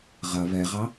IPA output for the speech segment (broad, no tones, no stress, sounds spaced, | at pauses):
ʁ ɐ β ɛ ʁ ɑ